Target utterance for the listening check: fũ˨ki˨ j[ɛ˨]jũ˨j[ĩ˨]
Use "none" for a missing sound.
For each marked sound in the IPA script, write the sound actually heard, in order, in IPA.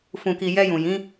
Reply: ɛ˧, ĩ˨˦

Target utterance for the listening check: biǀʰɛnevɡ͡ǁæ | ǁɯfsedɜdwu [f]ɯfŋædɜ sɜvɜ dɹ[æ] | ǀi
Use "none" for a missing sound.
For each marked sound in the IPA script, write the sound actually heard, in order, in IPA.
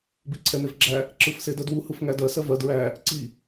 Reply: h, æ

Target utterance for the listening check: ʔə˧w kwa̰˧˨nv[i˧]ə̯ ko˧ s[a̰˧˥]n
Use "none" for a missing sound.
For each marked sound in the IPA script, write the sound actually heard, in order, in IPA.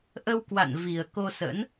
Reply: i˨˩, ə̰˧˥

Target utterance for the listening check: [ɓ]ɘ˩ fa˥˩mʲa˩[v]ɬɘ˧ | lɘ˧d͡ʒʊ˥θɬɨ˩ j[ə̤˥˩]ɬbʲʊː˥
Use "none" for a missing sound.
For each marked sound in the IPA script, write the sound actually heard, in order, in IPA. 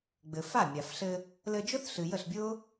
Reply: ɡ͡b, f, ə˥˩

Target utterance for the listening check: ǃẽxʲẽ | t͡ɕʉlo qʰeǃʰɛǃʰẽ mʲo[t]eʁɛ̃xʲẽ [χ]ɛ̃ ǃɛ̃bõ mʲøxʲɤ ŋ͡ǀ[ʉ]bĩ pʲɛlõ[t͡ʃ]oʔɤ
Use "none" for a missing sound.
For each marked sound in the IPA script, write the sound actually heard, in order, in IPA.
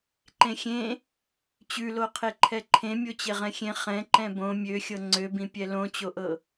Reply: t͡ɕ, χ, ø, t͡ɕ

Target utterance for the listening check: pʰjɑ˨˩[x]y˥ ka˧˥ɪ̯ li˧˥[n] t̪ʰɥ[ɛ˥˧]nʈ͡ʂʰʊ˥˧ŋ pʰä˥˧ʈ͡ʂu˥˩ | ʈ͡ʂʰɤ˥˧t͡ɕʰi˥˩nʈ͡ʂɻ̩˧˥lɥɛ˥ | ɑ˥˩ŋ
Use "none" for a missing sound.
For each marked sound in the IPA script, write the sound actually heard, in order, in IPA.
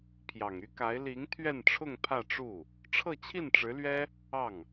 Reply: ŋ, ŋ, ɛ˥˧

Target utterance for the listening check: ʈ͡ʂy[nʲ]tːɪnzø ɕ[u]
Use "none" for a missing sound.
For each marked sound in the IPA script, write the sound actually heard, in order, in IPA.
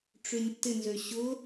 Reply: nʲ, ʊ

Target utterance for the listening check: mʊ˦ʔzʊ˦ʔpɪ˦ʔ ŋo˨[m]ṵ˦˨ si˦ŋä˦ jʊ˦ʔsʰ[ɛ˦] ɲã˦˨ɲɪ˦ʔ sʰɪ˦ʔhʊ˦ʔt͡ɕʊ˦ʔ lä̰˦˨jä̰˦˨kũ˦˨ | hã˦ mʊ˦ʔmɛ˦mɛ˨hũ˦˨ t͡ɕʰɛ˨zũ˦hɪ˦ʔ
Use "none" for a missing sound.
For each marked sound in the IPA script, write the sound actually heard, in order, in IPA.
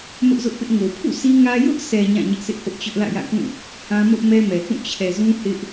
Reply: pʰ, ɛ˨

